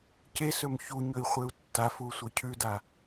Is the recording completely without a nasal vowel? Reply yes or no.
yes